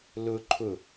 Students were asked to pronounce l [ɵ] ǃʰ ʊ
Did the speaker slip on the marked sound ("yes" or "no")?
yes